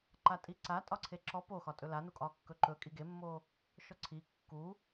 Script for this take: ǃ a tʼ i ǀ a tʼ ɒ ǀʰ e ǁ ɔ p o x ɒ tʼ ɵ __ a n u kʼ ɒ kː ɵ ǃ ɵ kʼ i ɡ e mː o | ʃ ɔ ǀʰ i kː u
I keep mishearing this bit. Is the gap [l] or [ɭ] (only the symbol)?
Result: l